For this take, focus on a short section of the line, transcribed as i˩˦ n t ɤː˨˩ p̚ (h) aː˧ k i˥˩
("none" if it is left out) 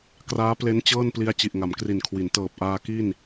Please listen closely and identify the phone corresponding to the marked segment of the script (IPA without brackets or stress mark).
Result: ʔ